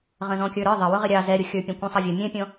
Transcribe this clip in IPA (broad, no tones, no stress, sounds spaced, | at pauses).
ʁ ə̃ z ɔ̃ kʲ ə˞ ɾ ə˞ ðˤ ɪ w ʊ ʁ ɪ ɾʲ ɑ z ɛ ɾʲ ʊ xʲ ə˞ pʲ ɑ̃ kʷ ɛ̃ sˤ ə vʲ ʊ mʲ ɛ̃ pʲ ɔ̃